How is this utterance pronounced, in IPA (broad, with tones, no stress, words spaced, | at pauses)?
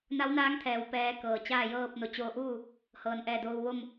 na˧˥wnaː˧˥ŋt̪ʰɛː˩w pɛː˧ kɤː˩t͡ɕaː˥˨ jɤː˥˨p̚ no˩˧t͡ɕoː˧ʔuː˥˨ | hɤː˩nʔɛː˧˩doː˧w ʋo˥˨m